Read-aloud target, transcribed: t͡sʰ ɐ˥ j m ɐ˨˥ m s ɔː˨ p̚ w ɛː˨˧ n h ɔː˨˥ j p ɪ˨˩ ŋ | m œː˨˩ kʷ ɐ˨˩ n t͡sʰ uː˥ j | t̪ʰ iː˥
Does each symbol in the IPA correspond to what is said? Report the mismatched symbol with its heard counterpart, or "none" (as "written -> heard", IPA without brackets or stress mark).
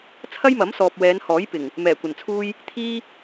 œː˨˩ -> ɛː˨˩